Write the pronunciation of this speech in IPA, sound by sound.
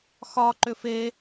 x ɒ ǃ ʏ f e

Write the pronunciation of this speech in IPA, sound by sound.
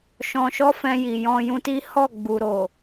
ʃ ɔ̃˧ ʃ ɔ˦ f ɛ̃˧ j i˨ j ɔ̃˧ j ũ˧ t i˦ h ɔ˦˨ ɡ͡b u˨ ɾ o˨

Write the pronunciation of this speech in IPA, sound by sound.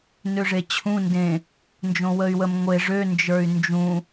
n ø ʐ e t͡ɕʰ ũ n d ẽ | n d͡ʒ õ w ə y̯ w ə m ŋʷ e ʐ ø n d͡ʒ ə˞ y̯ n d͡ʒ ũ

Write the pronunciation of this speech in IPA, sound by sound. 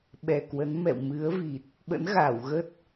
ɓ ɛ˨˩ k w ə˨˦ n m ɛ̰˧˨ w m ɨ˨˦ ə̯ v i˨˩ t̚ | ɓ ə̰˧˥ n ɣ aː˧˩ w ɣ ə˦˥ t̚

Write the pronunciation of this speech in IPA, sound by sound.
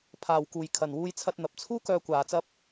pʰ aː˨ w k uː˨ j kʰ ɐ˨ n w uː˧ j t͡sʰ ɐ˧ t̚ n̪ ɐ˨ p̚ t͡sʰ uː˥ k œː˧ kʷ aː˨ t͡s ɐ˧ p̚

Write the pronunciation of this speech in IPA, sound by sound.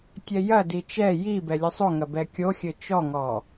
tʲ ɛ j ɐ d i t͡ʃ ɛ j i b ɛ lʲ ɘ sˤ o ŋ ɐ b ɛ kʲ o xʲ ɘ t͡ʃ ɔ ŋ ɔ

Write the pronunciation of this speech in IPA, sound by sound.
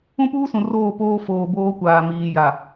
ũ˦ p uː˦ s ũ˨ r oː˦˨ p oː˦ f oː˨ b oː˦ kʷ aː˨ m iː˨ j a˨

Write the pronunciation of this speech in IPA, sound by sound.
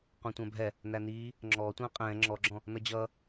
qʷ ɛ̃ tʷ æ̃ bʱ ɛ | n æ n iː | ŋ͡ǁ ɔː tʷ ɛ̃ː qʼ ɛ̃ː ŋ͡ǁ ɔ ɡ͡ǁ ɔ̃ | n ʌ d͡ʑ ʌː

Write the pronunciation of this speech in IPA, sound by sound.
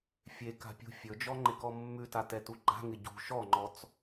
fʲ e k a̤ pʲ ṳ fʲ ɵ d͡ʒ ɔ ŋ͡ǃ ɪ k ɔ mː ʉ t a t ɛ t u ɡ͡ǃ a̤ ŋ ɪ ɟ ṳ ʃ ɔ ŋ͡ǃ ɔ t͡s

